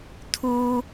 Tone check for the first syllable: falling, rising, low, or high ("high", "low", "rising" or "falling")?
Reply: high